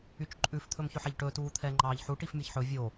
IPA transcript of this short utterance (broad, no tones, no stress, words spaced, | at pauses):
yt͡ʃǃʼʉf t̪ʰɵmçɵħɛʎʈɵː tuːt̪ʰɛːŋ͡ǃɑːʎħu ʈifmʲɛçħɵ vʲo